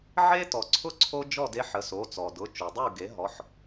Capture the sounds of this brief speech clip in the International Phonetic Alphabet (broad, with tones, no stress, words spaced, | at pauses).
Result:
ʕe˦ tɔ˩ǀʰʊ˥˨ ǀʰo˦ d͡ʒɔ˥˨de˦ħə˩˥so˩˧˩ t͡sɔ˩dʊ˩˧˩ t͡ʃo˩dˤo˥˨u̯ ɡe˩˥ɦɔ˩˧˩ħ